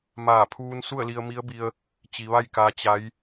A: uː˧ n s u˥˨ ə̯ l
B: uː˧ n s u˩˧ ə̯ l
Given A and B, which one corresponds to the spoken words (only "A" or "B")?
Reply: A